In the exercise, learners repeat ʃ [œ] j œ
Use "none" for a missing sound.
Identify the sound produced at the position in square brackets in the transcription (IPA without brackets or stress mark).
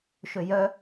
ø